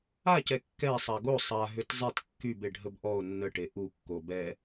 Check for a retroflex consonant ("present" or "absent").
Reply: present